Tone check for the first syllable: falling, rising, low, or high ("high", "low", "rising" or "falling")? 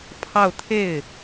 falling